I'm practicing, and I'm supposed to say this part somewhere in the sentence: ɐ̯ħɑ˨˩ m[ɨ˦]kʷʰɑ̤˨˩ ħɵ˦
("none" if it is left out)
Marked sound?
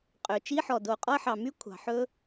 y˦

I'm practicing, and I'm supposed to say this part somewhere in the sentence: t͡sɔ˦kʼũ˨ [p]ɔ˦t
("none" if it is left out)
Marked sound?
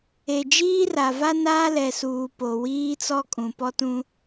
p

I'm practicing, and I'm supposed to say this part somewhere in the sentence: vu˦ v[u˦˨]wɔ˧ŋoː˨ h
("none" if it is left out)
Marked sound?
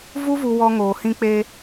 u˧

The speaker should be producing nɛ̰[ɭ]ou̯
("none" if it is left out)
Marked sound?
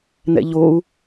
ʎ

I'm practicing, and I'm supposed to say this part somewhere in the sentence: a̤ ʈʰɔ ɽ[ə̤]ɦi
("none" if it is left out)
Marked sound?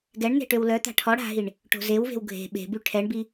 a̤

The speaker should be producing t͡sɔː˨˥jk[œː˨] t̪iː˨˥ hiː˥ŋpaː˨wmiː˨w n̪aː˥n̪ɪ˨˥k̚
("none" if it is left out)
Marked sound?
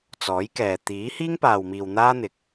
ɛː˨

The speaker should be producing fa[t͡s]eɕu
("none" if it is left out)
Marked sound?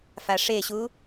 ʂ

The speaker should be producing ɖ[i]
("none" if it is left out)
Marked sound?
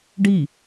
i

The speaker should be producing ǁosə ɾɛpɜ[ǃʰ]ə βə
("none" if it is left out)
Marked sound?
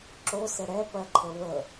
ǃʰ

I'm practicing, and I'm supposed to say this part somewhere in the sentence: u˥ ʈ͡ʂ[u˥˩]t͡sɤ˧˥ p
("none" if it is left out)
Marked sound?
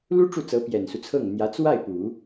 u˥˩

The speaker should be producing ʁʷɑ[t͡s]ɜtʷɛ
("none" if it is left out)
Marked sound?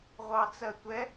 t͡s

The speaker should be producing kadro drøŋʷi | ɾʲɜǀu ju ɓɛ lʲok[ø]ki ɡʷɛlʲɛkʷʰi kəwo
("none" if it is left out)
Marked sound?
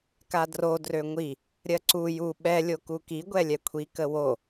u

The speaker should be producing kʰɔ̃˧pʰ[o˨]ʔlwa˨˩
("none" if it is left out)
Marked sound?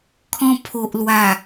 o˨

